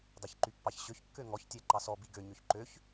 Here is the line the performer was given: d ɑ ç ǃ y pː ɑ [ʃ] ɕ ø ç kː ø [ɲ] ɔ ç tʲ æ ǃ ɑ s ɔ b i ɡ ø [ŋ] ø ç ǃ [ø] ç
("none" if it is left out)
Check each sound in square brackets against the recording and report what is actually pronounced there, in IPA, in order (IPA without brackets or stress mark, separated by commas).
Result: ç, ŋ, ɲ, ø